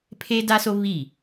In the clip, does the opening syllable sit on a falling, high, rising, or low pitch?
high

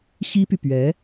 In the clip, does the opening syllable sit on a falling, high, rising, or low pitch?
high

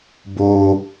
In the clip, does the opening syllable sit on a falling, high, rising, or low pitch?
low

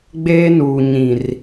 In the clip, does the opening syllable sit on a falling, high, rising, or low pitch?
high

